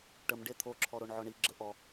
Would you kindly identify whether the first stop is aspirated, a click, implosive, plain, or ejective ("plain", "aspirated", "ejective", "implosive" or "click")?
plain